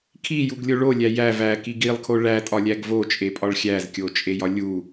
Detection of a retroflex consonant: present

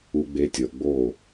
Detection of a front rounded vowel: absent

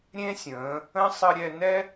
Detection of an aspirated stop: absent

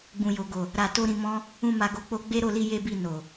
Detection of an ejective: absent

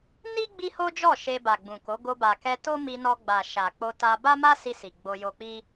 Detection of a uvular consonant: absent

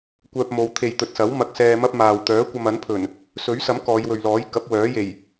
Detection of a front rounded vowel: present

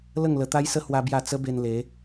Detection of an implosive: absent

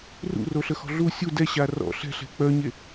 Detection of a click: absent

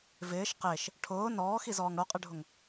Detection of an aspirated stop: present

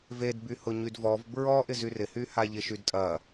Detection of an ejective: present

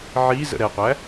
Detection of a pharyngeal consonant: present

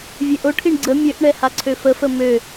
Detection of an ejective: absent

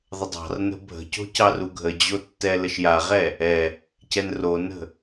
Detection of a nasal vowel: absent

